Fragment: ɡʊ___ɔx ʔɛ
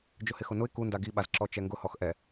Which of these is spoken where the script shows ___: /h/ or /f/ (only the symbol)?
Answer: h